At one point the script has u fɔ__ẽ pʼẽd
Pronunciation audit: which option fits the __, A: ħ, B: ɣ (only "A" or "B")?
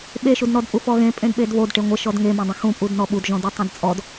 B